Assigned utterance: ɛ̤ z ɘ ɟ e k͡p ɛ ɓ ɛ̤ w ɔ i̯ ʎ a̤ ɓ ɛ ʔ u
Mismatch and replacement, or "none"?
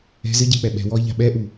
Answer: none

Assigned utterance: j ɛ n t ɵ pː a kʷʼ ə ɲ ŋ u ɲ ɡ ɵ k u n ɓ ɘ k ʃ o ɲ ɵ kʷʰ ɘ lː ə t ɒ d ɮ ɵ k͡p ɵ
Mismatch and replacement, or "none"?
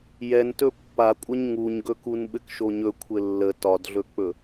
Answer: none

